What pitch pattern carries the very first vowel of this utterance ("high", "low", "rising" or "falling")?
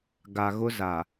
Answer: low